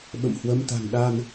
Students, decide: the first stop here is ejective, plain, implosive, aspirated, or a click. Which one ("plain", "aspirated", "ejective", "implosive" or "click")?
implosive